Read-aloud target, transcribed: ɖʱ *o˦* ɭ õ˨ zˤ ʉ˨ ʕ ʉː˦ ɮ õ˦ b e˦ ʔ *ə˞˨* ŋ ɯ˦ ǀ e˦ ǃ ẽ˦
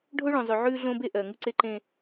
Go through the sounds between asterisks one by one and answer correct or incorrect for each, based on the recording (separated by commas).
correct, incorrect